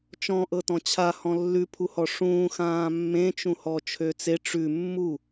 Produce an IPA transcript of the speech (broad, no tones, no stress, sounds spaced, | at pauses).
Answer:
t͡ʃ ɔ̃ ʔ ɤ t ɔ̃ t͡ɕʰ a h ɔ̃ lː ʉ pʰ u h ɔ ʂ ũː x ãː mː ẽ t͡ʃ ũ h ɔ t͡ʃʰ ø t͡s e ʈ͡ʂ ʉ mː u